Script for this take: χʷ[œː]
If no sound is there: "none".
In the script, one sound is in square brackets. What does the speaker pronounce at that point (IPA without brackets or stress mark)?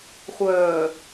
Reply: œː